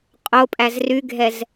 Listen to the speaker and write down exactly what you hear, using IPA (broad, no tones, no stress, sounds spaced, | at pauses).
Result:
qʼ o pʼ æ z r y ɡʱ ɛ z